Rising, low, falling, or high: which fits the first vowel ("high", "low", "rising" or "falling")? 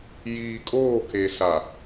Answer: low